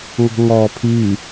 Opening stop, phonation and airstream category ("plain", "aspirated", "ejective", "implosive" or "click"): aspirated